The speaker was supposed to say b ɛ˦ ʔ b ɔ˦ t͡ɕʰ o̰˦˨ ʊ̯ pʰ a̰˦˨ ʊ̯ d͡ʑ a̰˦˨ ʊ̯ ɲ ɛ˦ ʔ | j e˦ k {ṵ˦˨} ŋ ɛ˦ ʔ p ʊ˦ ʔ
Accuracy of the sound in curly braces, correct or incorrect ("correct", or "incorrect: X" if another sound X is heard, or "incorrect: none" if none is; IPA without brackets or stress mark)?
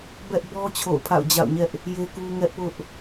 incorrect: u˦